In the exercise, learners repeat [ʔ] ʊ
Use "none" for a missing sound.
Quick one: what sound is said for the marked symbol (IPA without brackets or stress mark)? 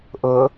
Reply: ʔ